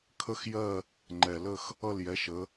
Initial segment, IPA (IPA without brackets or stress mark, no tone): kʰ